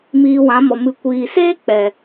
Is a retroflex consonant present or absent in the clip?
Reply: absent